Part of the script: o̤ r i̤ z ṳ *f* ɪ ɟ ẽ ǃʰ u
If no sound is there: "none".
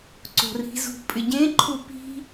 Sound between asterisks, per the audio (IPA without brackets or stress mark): pʼ